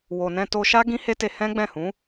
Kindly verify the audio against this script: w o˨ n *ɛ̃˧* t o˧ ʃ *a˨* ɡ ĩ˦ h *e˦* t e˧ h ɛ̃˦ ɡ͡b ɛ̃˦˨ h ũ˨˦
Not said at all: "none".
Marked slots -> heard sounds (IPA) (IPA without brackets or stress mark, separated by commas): ɛ̃˧, a˦, e˦